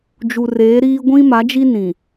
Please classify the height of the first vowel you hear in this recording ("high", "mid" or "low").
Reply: high